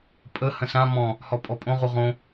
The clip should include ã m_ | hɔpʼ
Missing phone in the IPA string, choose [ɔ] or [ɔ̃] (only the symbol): ɔ̃